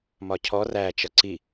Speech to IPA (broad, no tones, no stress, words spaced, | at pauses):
mɒcʰɔ ræ t͡ʃʌǀi